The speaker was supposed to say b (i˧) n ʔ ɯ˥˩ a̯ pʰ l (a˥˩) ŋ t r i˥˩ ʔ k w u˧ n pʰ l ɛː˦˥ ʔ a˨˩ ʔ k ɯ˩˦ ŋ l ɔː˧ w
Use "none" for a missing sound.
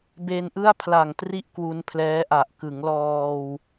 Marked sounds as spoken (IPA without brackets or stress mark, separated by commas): e˧, a˨˩